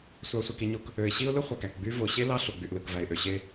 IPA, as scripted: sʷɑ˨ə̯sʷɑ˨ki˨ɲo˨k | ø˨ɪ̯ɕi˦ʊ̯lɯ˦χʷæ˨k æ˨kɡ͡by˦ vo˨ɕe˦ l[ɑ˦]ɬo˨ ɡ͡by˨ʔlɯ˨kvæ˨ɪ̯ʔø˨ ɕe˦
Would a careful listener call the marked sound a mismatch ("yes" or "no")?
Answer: no